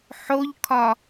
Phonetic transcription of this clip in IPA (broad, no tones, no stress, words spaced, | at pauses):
ħoʎkʰɒ